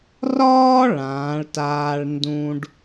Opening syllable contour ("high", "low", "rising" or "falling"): high